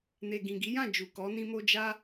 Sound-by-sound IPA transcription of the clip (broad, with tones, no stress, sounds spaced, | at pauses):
n e˨ ɡ ĩ˨ ɡ i˨˦ j ã˦˨ d͡ʒ u˨ k ɔ˨˦ n ĩ˧ m o˧ d͡ʒ a˦